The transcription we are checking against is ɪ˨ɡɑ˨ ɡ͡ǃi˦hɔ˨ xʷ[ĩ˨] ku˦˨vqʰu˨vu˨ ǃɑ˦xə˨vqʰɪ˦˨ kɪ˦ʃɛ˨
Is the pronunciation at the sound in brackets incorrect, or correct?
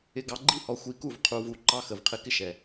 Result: incorrect